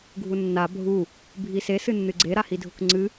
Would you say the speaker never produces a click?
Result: no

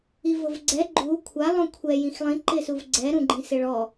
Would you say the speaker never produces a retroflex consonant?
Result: no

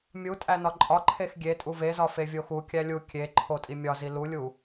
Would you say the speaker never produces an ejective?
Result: no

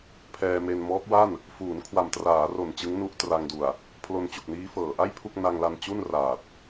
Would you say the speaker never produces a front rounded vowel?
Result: yes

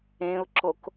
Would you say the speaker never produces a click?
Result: no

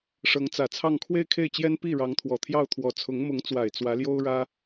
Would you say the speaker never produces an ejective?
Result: yes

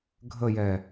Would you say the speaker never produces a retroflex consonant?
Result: yes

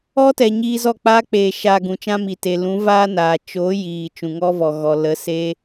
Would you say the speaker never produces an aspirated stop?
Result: yes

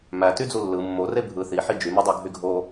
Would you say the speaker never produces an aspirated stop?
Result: yes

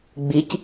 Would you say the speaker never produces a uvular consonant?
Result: yes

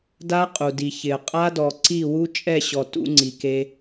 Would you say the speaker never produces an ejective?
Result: no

